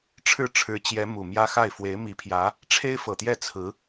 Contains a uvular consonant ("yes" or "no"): no